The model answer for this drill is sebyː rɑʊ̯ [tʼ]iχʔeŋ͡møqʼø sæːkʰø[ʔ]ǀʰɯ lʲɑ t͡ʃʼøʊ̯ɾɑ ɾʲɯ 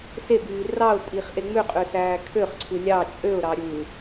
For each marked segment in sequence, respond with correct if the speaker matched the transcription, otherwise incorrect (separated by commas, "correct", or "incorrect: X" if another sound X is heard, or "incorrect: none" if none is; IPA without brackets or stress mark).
correct, incorrect: χ